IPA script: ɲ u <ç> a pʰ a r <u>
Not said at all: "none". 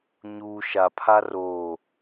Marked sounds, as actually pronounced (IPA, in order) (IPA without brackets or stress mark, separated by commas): ʃ, o